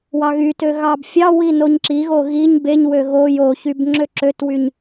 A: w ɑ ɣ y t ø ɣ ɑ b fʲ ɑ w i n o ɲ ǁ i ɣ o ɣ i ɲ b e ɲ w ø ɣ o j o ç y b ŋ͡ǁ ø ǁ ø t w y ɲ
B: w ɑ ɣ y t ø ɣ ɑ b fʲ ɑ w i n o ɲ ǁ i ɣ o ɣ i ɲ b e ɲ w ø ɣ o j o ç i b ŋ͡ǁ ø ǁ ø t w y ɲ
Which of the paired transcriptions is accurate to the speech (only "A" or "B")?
A